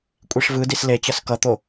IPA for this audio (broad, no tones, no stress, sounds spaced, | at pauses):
kʷʼ i ʂ v ɯ d i s l e t͡ɕ ʌ s k ʌ t̪ o